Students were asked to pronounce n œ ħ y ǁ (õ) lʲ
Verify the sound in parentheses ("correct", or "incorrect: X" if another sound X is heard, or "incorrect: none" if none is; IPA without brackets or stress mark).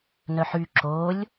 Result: incorrect: o